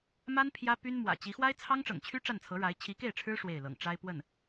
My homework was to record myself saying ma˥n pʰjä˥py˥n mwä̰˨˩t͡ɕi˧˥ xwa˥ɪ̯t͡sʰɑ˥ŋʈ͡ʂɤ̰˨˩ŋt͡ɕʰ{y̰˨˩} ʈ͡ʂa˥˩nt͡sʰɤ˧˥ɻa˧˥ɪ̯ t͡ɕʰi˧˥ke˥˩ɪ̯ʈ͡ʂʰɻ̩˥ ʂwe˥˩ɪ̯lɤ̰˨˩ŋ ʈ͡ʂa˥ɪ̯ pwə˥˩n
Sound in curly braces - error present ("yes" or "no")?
yes